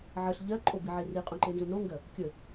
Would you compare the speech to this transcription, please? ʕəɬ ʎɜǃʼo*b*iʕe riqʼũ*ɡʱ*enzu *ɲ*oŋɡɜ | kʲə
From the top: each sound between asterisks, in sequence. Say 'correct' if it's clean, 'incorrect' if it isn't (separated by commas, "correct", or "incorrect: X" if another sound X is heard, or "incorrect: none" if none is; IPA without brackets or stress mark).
correct, incorrect: ǃ, incorrect: n